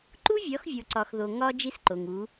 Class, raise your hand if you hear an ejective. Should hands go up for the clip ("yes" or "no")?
no